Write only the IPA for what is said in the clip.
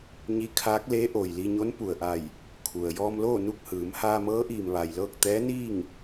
ɲi˧˥kʰaː˧˥k̚ leː˧˥ʔoː˩j li˧ɲo˧˥n pu˩ə̯ʔa˧˩j | kʰu˩ə̯ jɔː˧mloː˥˨ nu˥˨k̚hɯː˩˧m haː˧mɤː˧˥ʔiː˩m ʋa˩jlɤː˥˨k̚ t̪ɛː˧˥niː˥˨ŋ

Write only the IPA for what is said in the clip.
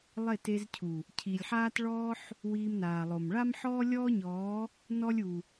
lˠe˦˨te˧zcʰu˨ | cʰi˨lʲħaː˦t ɭɔː˦ħ | wiː˧mnaː˨lˠo˨m ɭa˦mħɔː˦lʲɔː˦ɲɔː˨˦ | nɔ˦lʲu˨

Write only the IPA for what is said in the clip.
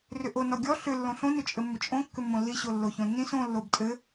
rʏʔonɔ ɡʲɔ ɬʏ lːõɬõnʏt͡ʃʼɘ mːʏt͡ʃʼõ kːʏmːõlːiɕo lːoçõnːĩs õ lːobtʼɘ

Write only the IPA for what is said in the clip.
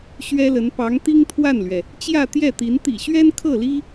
ɕɥɛ˥lə˧˥n pɑ˧˥ŋt̪i˥ŋt̪ʰwa˥˩nlɥɛ˩ | t͡ɕjä˥˧t̪jɛ˥˩t̪i˧˥n t̪ḭ˨˩ɕɥɛ˥n kʰɤ˥˩li˥

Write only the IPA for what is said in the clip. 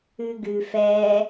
ʉɡʉ fɛ

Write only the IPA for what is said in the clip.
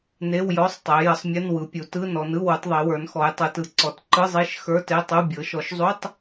ne˧˥˧wjɔ˧˥˧sˤtˤe˩˧ jə˩˧sˤmʲə˧˥˧n wɯ˩˧pʲu˩˧ tɯ˧˥˧nɔ˩˧n ɯ˧˥˧wu˩˧tˤðˤe˩˧wə˞˩˧n xɔ˩˧jtˤɯ˩˧tɯ˩˧ ǀɔ˩˧tǃɯ˧˥˧zˤe˧˥˧ʃ xə˞˧˥˧te˧˥˧tˤu˧˥˧ bʲɤ˩˧ʃɔ˩˧ʃzˤu˧˥˧tˤ

